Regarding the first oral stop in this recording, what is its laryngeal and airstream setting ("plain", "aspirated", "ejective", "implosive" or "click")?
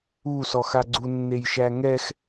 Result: click